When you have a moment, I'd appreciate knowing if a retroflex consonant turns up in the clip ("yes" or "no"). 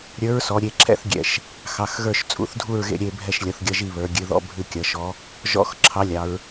no